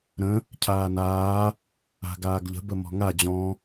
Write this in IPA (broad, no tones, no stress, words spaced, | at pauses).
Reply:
ɾə̃ | cʰaːnaː | a̤ɡaːɡʎə̤ bəmɔ̤ŋa d͡ʑɔ̃